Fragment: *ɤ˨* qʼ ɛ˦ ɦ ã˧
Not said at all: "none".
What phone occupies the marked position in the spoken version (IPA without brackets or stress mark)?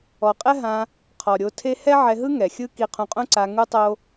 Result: ɔ˨